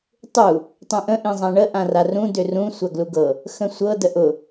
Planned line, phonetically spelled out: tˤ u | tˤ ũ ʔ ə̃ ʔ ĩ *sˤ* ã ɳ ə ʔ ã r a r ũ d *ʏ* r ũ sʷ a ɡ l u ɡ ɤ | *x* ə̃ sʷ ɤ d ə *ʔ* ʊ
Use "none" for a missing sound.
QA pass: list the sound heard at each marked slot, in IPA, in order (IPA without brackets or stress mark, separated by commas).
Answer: zˤ, ʏ, x, ʔ